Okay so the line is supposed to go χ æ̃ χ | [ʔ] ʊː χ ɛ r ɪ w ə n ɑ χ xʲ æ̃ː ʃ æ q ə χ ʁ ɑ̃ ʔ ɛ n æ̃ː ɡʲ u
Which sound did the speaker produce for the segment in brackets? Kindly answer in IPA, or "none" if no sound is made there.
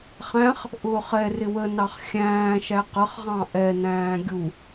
ʔ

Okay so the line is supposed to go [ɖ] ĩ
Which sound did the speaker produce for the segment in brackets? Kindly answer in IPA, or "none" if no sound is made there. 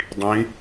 dˤ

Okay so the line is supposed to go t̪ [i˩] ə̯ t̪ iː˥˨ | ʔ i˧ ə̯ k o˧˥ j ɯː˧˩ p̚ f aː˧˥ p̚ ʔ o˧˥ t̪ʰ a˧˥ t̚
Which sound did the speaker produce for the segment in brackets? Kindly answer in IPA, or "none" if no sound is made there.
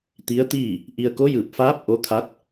i˧˥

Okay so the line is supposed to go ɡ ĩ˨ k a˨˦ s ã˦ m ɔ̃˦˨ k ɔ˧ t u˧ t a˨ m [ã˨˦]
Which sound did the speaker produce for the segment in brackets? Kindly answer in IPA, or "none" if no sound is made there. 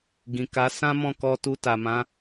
ã˨˦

